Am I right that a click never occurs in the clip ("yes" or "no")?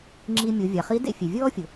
no